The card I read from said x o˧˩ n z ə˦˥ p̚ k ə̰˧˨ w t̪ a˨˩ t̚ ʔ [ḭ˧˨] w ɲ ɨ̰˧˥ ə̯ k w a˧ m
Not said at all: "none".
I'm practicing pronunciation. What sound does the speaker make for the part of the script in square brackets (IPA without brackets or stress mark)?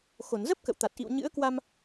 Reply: ḭ˧˨